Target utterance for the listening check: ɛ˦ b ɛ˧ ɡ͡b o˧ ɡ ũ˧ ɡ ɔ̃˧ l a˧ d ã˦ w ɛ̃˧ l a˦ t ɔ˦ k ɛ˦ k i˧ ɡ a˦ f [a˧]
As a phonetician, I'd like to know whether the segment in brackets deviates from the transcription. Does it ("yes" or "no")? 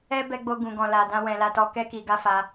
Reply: no